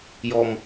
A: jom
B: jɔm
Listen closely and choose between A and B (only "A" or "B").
B